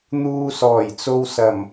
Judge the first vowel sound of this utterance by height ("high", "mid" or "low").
high